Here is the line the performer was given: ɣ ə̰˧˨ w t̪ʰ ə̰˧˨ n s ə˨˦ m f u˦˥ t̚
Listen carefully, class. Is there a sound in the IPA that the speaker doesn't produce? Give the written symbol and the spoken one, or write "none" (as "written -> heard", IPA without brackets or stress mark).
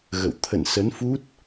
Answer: m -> n